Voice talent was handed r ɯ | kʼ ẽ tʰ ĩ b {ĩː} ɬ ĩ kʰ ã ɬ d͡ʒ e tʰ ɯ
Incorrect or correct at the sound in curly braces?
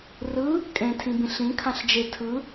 incorrect: ĩ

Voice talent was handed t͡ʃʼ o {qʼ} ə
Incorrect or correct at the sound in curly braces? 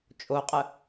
correct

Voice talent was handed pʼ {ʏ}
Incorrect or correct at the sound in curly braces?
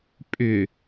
correct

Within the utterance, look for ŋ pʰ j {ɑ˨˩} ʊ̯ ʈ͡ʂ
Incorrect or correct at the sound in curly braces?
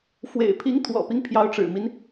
incorrect: ɑ˧˥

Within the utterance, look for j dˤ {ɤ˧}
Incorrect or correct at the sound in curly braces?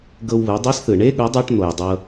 correct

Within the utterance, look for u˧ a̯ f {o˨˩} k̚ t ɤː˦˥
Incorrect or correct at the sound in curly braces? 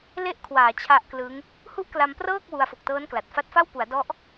correct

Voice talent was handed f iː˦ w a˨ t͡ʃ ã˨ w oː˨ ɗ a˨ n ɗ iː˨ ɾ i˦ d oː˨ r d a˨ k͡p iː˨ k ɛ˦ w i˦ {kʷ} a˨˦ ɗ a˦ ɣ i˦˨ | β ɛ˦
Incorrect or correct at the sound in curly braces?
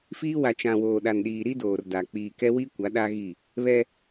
correct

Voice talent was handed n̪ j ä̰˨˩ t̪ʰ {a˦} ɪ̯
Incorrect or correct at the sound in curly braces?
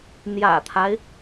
correct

